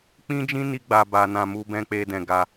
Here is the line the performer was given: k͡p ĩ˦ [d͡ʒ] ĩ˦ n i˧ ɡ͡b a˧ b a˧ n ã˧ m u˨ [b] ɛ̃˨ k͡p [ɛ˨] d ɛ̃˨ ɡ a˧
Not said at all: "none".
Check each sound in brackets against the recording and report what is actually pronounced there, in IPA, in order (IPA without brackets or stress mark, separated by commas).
d͡ʒ, b, e˨